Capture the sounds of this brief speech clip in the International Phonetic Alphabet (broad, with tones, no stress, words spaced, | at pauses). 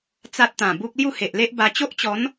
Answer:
t͡sa˦t̚t̪ã˨˩bu˦k̚ lju˥˧he˨ʔle˦ʔba˧ t͡ɕo˦ʔt͡ɕɔ˨˦n